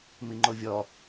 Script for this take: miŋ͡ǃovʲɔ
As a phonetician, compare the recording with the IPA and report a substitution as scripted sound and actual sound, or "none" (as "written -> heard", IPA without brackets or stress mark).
none